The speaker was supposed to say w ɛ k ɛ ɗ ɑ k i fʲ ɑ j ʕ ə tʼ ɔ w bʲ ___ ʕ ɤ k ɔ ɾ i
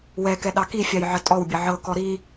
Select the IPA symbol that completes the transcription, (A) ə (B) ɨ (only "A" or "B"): A